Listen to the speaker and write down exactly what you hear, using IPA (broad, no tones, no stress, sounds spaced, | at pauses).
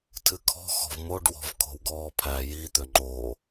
tʰ ɨ kʰ ɔ̤ x ɔ̤ v m o ɖ w ɔ̤ v kʰ o̤ w ɡ ɔː pʰ æ j i t̪ ø ŋ͡ǃ o